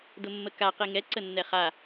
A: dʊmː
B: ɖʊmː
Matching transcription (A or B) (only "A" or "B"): A